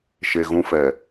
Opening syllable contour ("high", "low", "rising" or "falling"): low